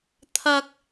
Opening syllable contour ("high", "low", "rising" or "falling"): high